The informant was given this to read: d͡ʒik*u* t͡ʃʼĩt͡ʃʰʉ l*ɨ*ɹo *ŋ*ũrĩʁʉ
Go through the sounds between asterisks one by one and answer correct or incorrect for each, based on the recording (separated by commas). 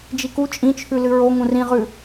correct, correct, correct